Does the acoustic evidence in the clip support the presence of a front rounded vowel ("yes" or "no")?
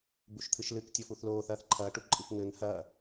no